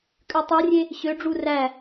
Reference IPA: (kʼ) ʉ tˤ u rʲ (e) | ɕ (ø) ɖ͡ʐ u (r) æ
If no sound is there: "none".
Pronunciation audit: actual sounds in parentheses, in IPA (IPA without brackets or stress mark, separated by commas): kʼ, e, ø, r